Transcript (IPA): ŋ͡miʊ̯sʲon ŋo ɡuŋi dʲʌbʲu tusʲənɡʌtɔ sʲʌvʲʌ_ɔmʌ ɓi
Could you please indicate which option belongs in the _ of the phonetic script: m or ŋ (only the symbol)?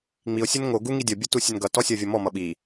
m